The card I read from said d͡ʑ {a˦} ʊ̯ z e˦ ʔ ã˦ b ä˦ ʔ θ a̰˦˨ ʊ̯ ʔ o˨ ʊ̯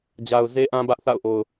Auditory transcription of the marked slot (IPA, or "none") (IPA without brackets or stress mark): a˨